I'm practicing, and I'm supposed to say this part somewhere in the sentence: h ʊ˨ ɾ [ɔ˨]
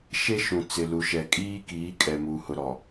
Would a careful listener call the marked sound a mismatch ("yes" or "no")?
no